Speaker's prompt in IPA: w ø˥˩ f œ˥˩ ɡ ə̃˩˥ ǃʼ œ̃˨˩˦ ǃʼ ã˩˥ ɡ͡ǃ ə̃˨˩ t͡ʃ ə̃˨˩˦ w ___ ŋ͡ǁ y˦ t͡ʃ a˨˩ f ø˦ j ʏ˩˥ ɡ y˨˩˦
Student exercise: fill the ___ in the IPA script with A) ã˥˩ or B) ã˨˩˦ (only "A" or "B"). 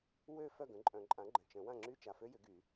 A